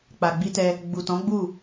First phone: k͡p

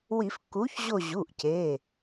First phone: w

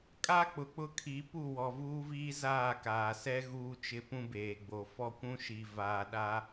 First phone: kʼ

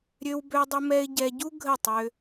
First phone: ɾʲ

